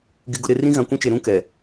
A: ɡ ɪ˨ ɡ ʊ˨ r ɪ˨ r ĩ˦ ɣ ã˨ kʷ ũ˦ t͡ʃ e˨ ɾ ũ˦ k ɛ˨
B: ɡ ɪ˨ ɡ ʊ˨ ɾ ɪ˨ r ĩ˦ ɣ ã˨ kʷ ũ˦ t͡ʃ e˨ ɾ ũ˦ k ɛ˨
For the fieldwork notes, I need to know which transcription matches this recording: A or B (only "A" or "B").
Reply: B